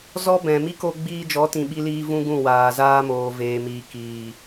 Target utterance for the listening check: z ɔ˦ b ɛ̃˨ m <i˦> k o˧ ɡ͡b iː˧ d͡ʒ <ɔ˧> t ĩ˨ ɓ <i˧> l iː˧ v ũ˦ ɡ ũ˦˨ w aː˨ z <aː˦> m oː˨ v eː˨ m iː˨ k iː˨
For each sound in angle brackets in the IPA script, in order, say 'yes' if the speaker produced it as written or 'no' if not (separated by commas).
yes, no, yes, yes